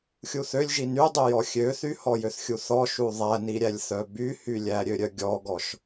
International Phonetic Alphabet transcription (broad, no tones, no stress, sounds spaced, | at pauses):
xʲ u θ ø lʲ ʒ i n y dˤ y j ɔ xʲ ø θ y h ɔ j ø θ xʲ u θ ɔ ʃ u ðˤ æ n i ɾʲ æ lʲ θ œ b y h y lʲ æ ɾʲ ø ɾʲ œ ɡʲ ɔ ɡ ɔ ʃ